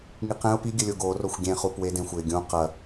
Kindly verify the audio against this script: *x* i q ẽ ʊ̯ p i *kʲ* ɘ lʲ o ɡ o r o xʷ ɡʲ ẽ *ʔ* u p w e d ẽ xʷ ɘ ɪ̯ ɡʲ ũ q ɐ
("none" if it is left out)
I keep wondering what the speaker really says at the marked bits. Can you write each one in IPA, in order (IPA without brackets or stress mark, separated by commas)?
ŋ, ɡʲ, χ